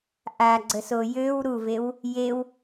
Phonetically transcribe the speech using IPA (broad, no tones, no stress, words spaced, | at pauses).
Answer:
ʔaɡ͡ǀəso jøw ɾuvew | jew